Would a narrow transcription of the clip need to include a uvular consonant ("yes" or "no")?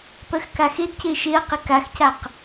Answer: yes